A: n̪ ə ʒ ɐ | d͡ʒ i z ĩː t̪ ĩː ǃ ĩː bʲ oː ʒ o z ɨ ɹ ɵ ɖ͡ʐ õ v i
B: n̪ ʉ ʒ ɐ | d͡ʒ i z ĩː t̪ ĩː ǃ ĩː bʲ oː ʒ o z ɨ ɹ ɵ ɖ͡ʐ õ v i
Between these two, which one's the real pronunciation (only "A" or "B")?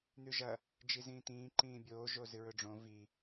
B